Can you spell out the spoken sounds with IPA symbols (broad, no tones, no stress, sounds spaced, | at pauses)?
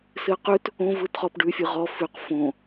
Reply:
s ɨ ə̯ q ʉ t | õ v ɯ t χ ɔ p ɖ ʉ fʲ ɯ ʁ ɔ f ʉ q f õ